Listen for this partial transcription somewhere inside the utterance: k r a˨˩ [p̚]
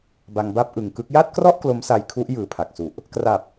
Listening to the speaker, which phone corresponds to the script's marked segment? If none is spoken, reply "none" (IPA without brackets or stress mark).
p̚